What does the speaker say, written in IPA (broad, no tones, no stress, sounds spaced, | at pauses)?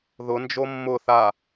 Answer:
ð ʊ n d͡ʒ o mː ʊ θ a